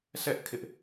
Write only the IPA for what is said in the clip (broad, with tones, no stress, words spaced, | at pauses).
sʰɛ˦ʔ kʰɪ˦ʔ